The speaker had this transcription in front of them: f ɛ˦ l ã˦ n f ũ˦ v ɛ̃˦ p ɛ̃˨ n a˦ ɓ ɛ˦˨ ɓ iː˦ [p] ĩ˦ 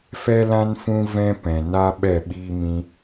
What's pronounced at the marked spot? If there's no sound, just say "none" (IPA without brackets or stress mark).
m